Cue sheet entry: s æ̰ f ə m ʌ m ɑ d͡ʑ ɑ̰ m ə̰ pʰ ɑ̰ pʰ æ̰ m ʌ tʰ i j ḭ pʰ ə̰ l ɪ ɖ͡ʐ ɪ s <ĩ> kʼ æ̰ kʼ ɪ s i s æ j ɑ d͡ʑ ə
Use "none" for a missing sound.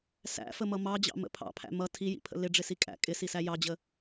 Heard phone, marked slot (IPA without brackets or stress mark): i